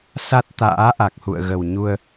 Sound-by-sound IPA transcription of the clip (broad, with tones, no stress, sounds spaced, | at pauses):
s a˦˥ t̚ t̪ a̰ː˧˥ ʔ a˨˩ k̚ h ṵ˧˨ ə̯ ɣ ə˨˩ w ɲ u˧ ə̯